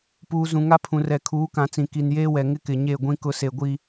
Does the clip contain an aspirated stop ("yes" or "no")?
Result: yes